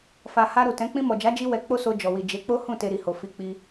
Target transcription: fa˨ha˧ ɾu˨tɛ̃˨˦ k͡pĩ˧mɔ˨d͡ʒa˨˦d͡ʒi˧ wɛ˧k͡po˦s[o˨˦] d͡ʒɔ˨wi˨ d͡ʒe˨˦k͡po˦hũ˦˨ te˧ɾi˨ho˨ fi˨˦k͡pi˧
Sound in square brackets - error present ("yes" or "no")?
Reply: yes